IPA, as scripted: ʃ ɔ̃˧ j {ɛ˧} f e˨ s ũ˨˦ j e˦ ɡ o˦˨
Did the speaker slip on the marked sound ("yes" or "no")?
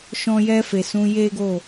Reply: no